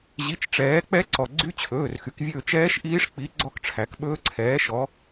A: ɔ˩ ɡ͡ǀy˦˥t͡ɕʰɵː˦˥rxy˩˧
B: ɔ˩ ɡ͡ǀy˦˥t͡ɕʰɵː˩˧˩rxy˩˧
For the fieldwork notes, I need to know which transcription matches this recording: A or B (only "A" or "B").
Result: B